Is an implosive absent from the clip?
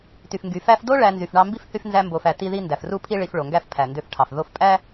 yes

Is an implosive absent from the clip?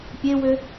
yes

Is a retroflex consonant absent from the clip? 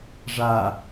no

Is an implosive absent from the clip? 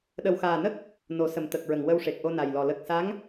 no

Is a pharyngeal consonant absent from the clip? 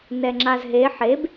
no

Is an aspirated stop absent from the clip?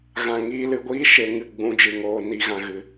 yes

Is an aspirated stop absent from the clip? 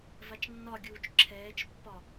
no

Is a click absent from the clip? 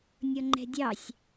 no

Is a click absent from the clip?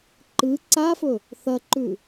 no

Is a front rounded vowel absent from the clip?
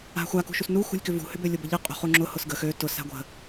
no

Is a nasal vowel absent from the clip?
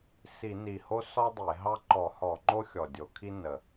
yes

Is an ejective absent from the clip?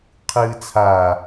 yes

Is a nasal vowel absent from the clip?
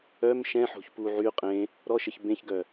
no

